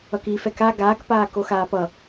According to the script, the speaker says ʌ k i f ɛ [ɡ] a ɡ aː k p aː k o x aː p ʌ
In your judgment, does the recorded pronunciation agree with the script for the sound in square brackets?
no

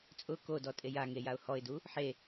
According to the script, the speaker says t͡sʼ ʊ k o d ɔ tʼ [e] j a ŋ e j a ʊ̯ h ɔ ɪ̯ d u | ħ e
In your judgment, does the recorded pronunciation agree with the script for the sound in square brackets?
yes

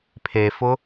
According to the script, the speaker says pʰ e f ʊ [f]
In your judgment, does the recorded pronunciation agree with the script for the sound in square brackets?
no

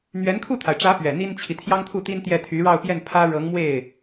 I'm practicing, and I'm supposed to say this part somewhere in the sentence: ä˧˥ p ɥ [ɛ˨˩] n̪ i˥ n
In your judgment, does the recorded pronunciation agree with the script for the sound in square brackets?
yes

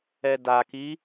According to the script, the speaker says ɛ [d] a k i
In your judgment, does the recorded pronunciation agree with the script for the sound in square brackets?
yes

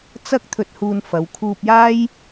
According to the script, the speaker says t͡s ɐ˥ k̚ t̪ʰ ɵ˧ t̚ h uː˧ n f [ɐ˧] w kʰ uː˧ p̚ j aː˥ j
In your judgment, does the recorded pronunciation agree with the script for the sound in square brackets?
no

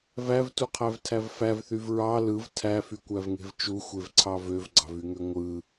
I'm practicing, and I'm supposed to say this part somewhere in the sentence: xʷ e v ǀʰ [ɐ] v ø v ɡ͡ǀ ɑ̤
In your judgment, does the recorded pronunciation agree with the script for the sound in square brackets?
no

